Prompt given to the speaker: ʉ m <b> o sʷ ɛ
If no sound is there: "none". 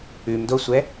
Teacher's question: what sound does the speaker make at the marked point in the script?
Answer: d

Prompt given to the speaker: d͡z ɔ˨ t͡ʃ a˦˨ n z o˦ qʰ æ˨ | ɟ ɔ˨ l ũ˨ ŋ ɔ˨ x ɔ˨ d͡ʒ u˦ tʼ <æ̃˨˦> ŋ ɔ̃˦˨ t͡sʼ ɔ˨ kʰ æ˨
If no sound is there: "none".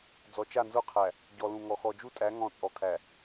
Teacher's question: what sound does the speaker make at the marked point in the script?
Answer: æ˨˦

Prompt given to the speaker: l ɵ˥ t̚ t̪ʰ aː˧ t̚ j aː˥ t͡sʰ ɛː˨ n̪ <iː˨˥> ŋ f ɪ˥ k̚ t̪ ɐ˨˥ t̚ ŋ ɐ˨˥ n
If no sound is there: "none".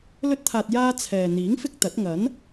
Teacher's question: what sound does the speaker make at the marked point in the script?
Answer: iː˨˥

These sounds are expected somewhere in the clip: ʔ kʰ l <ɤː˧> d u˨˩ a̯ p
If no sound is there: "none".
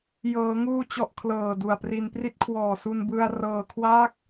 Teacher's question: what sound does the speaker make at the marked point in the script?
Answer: ɤː˨˩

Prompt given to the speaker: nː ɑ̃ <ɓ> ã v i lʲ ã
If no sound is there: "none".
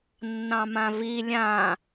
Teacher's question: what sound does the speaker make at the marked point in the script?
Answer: m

